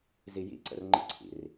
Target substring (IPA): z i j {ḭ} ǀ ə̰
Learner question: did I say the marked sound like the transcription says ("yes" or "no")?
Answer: yes